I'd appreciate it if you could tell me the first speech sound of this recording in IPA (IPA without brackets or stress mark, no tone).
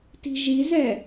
t